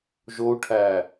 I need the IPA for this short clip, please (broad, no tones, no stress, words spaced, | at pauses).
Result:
ʒou̯ʈʰæː